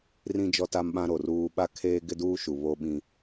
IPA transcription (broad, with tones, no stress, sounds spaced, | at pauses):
r ĩ˦ d͡ʒ ɔ˦ t a˦ m ɓ ã˦ ɾ o˨ r uː˦ ɓ a˦ kʰ eː˦ ɡ ɪ˦ d uː˦ ʃ u˨ β o˦ ɓ ĩ˦